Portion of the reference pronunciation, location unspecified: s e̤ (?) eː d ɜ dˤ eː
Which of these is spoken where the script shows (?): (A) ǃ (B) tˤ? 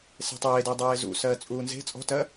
B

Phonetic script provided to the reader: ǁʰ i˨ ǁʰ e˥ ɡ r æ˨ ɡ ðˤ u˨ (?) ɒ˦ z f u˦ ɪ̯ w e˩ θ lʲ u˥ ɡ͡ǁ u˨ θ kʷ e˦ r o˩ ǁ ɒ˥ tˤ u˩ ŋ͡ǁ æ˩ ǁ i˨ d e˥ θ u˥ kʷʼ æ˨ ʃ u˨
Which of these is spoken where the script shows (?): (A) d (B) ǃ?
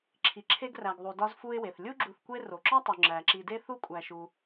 A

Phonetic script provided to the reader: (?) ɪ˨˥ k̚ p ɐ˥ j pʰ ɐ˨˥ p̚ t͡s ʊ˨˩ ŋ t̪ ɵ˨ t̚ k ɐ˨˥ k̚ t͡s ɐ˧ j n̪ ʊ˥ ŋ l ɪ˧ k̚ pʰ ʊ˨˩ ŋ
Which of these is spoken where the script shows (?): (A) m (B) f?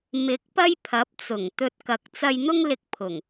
A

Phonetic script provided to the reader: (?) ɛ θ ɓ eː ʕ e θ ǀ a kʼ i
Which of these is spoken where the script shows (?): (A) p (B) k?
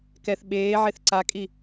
B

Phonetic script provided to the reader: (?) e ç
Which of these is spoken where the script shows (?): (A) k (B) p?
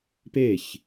B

